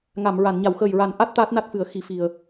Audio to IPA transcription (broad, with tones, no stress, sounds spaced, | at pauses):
ŋ a˨˩˨ m ɹ a˨˩˨ n ɲ a˨˩˨ w x əː˨˩ j ɹ a˨˩˦ n ʔ a˦˥ t̚ t̪ aː˦˥ t̚ n a˦˥ t̚ f ɨ˨˩˦ ə̯ x i˨˩˦ f i˨˩ ə̯